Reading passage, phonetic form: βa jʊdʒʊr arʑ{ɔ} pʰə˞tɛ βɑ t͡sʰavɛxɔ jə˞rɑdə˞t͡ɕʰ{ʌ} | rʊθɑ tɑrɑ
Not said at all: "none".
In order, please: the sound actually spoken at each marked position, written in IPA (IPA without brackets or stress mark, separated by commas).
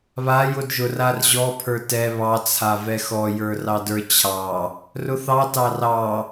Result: ɔ, ɑ